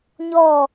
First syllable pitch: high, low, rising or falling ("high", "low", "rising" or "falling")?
falling